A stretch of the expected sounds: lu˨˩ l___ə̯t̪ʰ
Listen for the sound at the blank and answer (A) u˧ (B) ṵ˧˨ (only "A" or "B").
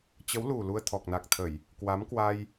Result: A